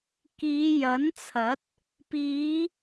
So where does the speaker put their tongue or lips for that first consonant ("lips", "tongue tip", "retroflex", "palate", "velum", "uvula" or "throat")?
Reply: velum